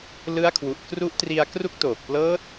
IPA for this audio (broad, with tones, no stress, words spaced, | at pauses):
lɯ˦˥a̯kʰwu˨˩ʔ kru˦˥ʔtri˧a̯ kru˦˥k̚toː˨˩k̚plɤː˦˥t̚